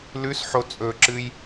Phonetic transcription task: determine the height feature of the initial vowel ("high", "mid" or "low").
high